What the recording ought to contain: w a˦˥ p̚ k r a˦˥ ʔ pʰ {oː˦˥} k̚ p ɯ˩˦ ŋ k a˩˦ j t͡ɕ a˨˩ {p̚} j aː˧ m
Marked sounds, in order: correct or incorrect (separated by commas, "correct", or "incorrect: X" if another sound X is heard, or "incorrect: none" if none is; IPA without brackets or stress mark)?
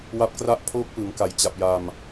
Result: correct, correct